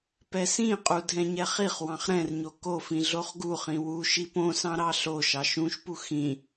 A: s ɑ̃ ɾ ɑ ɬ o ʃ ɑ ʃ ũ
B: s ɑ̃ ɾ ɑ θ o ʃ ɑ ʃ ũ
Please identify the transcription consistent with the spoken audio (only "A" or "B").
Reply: A